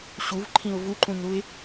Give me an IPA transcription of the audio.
ɕ u v ǃʰ ĩ ʊ̯ v u ǃ ũ ɲ ɾ u ɪ̯

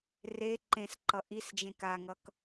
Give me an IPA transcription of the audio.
r e ǃ ẽ s ǃ ʌ ʔ i s d͡ʒ ẽ k a ŋ ʌ k

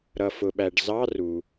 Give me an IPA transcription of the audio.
ɾ ʌ˩ f ʊ˩ ɓ æ˩ ɖ z ɑ˧˥˧ r u˩

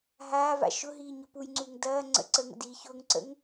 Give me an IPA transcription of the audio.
ɦ aː v a̰ ʃ ʊ ɦ iː ɲ ʊ p u j ŋ͡ǀ uː ŋ d ɐː ŋ͡ǀ ə̰ ǀ ə ŋ ə̰ d iː ç ʊː ŋ ǀ ə̰ ŋ

